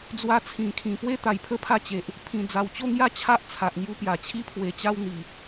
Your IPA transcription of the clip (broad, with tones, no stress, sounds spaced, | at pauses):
d͡z w a˧ t͡sʰ ĩ˨˩ kʰ ĩ˨˩ p w e˦ t̪ a˧ j pʰ ə˥˧ pʰ a˥˧ t͡ɕ e˨ ʔ | pʰ ĩ˨˩ d͡z a˨˩ w t͡ɕ o˥˧ ŋ j a˦ t͡ɕʰ a˦ ʔ t͡sʰ a˨ ʔ ŋ j u˧ p j a˨˩ t͡ɕʰ i˧ pʰ w e˨˩ t͡ɕ a˧ w n̪ i˨˩